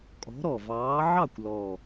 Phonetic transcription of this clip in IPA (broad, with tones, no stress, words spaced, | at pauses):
kʼɔ̤˨˥ɾɔ˨˩vɑː˨˥ ʕɑ˥˩kʷlɔ˨˩